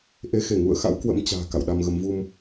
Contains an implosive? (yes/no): yes